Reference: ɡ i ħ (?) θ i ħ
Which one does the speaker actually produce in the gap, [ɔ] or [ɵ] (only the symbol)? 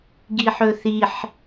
ɵ